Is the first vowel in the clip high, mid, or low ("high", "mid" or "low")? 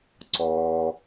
mid